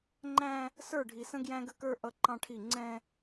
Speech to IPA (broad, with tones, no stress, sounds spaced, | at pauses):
ŋ͡ǃ æ̃˦ | s ə˞˦˨ ɖʱ i˨ s ə̃˦ ɡ j æ̃˦ ɡ ə˦ k ə˞˦ ʔ ʌ˦ ǃ ɑ̃˦ ʈʰ i˦˨ ŋ͡ǀ ɛ̃˦